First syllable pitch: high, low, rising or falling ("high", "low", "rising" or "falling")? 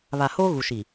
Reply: low